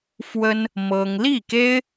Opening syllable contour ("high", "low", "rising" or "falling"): high